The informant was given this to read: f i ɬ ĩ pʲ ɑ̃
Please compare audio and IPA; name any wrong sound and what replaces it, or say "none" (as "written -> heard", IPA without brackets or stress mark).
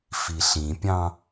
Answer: none